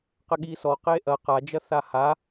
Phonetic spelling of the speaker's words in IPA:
q ɘ ɠ i s ɔ q e ʔ ɐ q a d͡ʒ ɐ θ a h a

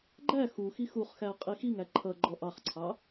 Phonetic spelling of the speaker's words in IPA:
ɡ͡ǃ æ x u x i x u χ x æ qʼ i x i ŋ æ ǃʰ ʌ ɡ͡ǃ ɔ ʔ ɑ χ ǀʰ ɑ

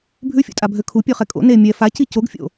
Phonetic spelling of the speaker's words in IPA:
bʱ ʉ fʲ o̰ tʼ a bʱ ø kʰ u pʲ ø χ ɛ kʼ o̰ n e mʲ ɛ f a c i c o ɡ fʲ o̰

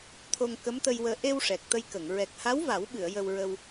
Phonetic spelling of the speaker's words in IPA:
t̪ʰ o˧ ŋ k ə˧˥ m t̪ ə˧ j w əː˧ ʔ e˧ w ʂ ɛ˨˩ k̚ t̪ ə˧ j k ə˨˩˨ ŋ ɹ ɛ˨˩ k̚ h a˧˥ w v a˨˩˦ w ɓ ɨ˨˩˨ ə̯ j ə˧ w ɹ ə˧ w

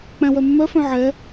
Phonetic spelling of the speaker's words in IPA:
k͡p æ̃ w œ mː œ f œ̃ ʕ ɛ

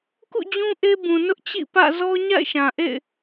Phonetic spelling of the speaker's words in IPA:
k ṵ˦˨ d͡ʑ ũ˦ ʔ e˦ b ũ˨ n ʊ˦ ʔ t͡ɕ ḭ˦˨ p ä̰˦˨ z ɔ˦ ɲ a̰˦˨ ɪ̯ ʃ ã˨ ʔ ḛ˦˨ ɪ̯

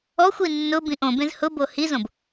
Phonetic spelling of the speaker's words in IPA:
ɔ xʷ i nː ʊ b ĩ ʔ õ b ẽ z h ʊ b o h i z õ b

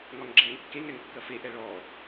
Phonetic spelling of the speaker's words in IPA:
ŋ ɒ ŋ ɡ͡ǁ ɛː ŋ kː e ŋ ɛ ŋ kː ɐ f e ʔ ɛ ɭ ɔ

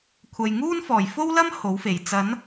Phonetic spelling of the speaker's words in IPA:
kʷʰ ɐ˨ j ŋ uː˥ n f ɔː˨˩ j f o˥ w l ɐ˥ m h o˨˥ w f e˨˩ j t͡s ɐ˨˥ n

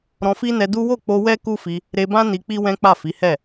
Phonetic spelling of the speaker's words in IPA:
ɾ ɔ̃˧ f i˦ n ɛ˧ d u˦ w o˦˨ k͡p o˧ w ɛ˦ k u˦ f i˧ | ɾ e˧ b ã˦ n i˧ k͡p i˦ w ɛ̃˦ k͡p a˦˨ f i˨˦ h ɛ˦˨

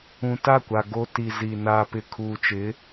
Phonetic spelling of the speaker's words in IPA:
ũ˨ t a˦˨ kʷ a˨ ɡ o˨ t i˨ z i˨ n aː˨ p ɪ˨ kʰ uː˨ t͡ʃ ɪ˨˦

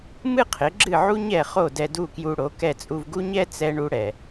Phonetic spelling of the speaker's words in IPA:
m ɨ˥ qʰ ɪ˩˥ ɡ͡ǁ ɨ˥˩ ʕ u˥ ɲ ɛ˥˩ χ o˥˩ d ɛ˧ d u˥˩ k j u˧ ɽ o˩˥ k ɛ˥˩ t͡sʼ u˧ v ɡ u˥ ɲ ɛ˥ t͡s ɛ˧ ɳ u˧ ɽ ɛ˩

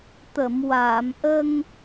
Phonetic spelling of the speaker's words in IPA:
t̪ ə˨˩˨ m w aː˨˩˨ m ʔ ə˧ ŋ

